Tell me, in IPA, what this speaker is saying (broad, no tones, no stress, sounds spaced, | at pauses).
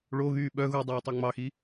ɭ o ɣ yː ɓ œ ɣ u dˤ iː tˤ ʉ ŋ͡m ɑ x i